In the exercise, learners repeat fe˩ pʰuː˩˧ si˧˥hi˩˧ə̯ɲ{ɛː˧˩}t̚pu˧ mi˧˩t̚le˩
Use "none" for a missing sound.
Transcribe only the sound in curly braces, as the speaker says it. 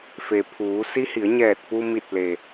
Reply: ɛː˧˩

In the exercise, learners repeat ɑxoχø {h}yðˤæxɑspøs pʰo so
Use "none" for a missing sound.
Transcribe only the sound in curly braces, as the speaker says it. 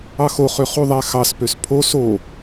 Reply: χ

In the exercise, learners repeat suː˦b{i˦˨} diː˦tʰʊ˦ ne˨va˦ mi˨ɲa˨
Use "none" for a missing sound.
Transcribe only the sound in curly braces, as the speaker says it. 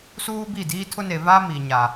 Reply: i˦˨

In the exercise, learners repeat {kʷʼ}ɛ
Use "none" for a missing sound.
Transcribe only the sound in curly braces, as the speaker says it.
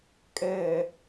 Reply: kʼ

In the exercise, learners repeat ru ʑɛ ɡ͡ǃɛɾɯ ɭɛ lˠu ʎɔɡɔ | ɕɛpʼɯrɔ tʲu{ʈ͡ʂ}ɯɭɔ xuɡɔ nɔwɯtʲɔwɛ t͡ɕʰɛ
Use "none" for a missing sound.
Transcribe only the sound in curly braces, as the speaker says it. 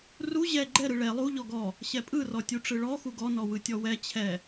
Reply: ʈ͡ʂ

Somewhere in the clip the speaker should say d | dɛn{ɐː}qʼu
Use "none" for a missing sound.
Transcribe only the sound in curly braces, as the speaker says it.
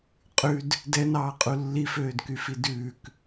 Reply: ɑː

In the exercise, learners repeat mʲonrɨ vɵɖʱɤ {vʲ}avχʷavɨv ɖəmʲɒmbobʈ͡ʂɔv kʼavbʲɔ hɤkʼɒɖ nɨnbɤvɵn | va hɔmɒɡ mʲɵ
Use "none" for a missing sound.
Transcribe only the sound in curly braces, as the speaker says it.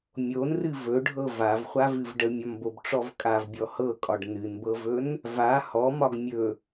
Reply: v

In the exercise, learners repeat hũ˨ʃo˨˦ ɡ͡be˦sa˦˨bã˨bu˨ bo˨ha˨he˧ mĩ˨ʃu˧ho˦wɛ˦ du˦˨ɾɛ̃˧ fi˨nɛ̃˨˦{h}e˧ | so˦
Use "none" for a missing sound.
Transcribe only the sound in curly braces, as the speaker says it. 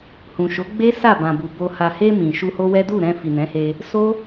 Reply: h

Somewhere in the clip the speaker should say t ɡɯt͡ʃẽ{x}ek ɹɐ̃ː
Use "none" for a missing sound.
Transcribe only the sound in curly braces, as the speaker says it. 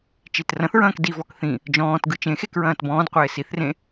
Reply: x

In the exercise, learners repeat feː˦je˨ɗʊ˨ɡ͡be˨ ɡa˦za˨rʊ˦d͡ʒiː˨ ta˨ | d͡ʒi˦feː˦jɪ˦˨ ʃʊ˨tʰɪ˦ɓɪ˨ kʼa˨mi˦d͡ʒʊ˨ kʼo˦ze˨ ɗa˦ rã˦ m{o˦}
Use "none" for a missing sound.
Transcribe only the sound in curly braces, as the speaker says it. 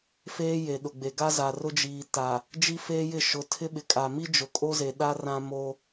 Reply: o˦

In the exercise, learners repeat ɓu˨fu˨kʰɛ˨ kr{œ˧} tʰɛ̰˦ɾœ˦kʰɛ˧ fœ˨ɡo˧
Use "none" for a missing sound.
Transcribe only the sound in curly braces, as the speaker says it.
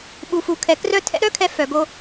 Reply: œ˧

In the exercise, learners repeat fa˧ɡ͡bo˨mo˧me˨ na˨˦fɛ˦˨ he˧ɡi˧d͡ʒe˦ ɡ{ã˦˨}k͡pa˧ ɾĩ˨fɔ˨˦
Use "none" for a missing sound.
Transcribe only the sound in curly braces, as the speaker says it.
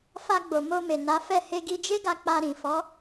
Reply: a˦˨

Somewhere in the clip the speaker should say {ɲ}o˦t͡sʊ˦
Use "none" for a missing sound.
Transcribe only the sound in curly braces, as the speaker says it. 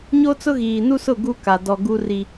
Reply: ɲ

